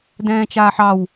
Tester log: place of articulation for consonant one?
alveolar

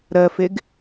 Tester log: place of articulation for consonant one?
alveolar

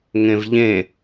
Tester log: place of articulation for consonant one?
velar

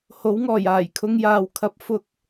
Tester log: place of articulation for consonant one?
glottal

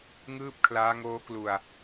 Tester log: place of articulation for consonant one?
velar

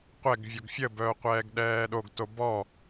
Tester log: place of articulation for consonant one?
uvular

